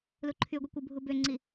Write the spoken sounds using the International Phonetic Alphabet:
l u ǃʰ y ɡʷ i kʷ ɯ bʱ u b ø ŋ͡ǀ i

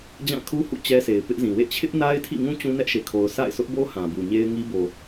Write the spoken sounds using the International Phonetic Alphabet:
d͡ʑ ã˦˨ kʰ u˦ h ṵ˦˨ t͡ɕ ɛ˦ sʰ e˨ ɪ̯ p ɪ˦ ʔ z ĩ˨ w ḛ˦˨ t͡ɕʰ ɪ˦ ʔ n a˦ ɪ̯ tʰ ḭ˦˨ ŋ ũ˦ t͡ɕ ũ˦ n ɛ˦ ʔ ʃ e˨ kʰ o˨ ʊ̯ s a̰˦˨ ɪ̯ s ʊ˦ ʔ b o˦ h ã˨ b u˨ ɲ e˦ ɪ̯ ŋ i˦ b o˨

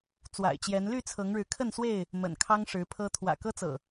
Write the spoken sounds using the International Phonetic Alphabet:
t͡s w a̰˨˩ ɪ̯ t͡ɕ j ɛ˨˦ n l y˥˨ t͡sʰ ɤ˨˦ ŋ ɻ ɻ̩˨˦ kʰ ə˥˨ n s w e˥˨ ɪ̯ | m ə̰˨˩ n kʰ ɑ˦ ŋ ʂ ɻ̩˨˦ pʰ ɤ˦ t̪ʰ w ä̰˨˩ k ɤ˦ t͡s ɤ̰˨˩

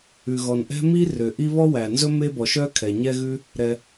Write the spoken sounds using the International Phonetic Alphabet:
ʉ˩ ɣ ɔ˩ n ʔ ɛ̤˥ m i˥ r ø˩ ʔ i˥ β ɔ˥ w æ˩ n z ɵ˥ m e˥ b ɔ˩ ʃ œ˥ kʰ ɛ˩ ɲ ɛ˥ ɣ ʉ˥ | ɾ ɛ˩

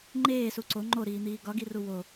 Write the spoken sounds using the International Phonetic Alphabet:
ŋ͡ǃ eː s u ǀ o ŋ͡ǃ o ɾ iː n̪ iː ɡ ɒ ɡ i r u w o

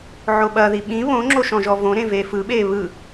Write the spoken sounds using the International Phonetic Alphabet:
ʕ o ɓ ɐ ð i ɓ ĩ β õ ŋ͡ǁ o ʃ ɔ̃ ʒ ɔ v õ ɾ ẽ v eː f ɯ ɓ eː β ɯ

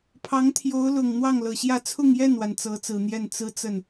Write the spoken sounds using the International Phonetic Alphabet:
pʰ ɑ˧˥ ŋ t̪ʰ j o˧˥ ʊ̯ l ʊ˨˩ ŋ n̪ w ɑ˥˩ ŋ l ɤ˨˩ ɕ j ä˥˧ t͡sʰ ʊ˥˧ ŋ j ɛ˥˩ n w a˩ n t͡s ɤ˧˥ t͡s ɹ̩˨˩ n̪ j ɛ˥˩ n t͡s ɹ̩˥ t͡s ə˥˩ n

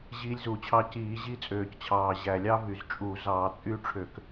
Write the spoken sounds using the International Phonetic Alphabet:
ʑ iː˦˥ lʲ z u˧˩˧ t͡ɕʰ ɑ˦˥ c iː˧˩˧ ʑ i˦˥ t͡sʼ øː˨˩ c t͡ɕʰ ɑː˨˩ ʑ æ˨˩ lʲ ɑ˦˥ v y˨˩ z t͡ʃʼ u˧˩˧ z ɑː˧˩˧ t͡sʼ y˦˥ ʈ͡ʂʰ ø˧˩˧ k

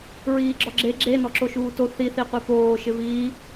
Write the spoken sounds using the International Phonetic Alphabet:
ɹ iː ɡ͡ǁ ɔ ɡ͡ǁ e ɡ͡ǁ e n ɔ ǁ o ʃ uː t o θ i θ i qʷ i p oː ʃ ɪ v iː

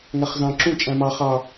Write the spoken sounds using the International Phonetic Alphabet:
ŋ æ χ z ɑ̃ ǁ ũ t͡ʃʼ æ̃ m ɑ χ ɑ

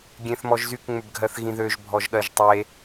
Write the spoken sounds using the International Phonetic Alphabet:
ɡʲ ẽ θ m ɔ ʒ z y k ŋ͡m ʏ b ɡʱ ɜ θ ɣ ĩ ð ø ʒ bʱ ɔ ʒ ɠ ɜ ʒ tˤ e

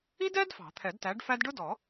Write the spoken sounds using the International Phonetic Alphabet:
i˥ d ɛ˥ d f ɑ̤˨˩˦ t̪ʰ ɛ˨˩˦ d t æ˨˥ ɖ f æ˥ d ɖ ʊ˥ d ɔ˨˩˦

